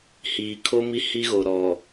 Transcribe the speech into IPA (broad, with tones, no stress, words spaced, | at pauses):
hiː˨kʰo˦ mi˦hi˦ɣo˨ɾɔ˨